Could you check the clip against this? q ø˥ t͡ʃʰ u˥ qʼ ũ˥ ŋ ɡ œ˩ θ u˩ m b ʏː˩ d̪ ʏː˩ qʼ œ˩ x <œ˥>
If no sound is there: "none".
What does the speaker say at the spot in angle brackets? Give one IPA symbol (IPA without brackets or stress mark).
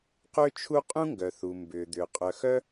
œ˥